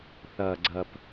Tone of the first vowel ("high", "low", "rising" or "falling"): low